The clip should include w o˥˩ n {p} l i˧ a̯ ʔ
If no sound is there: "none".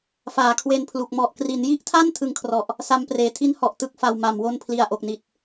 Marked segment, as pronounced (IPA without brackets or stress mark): pʰ